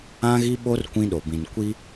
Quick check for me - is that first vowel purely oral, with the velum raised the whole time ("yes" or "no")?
no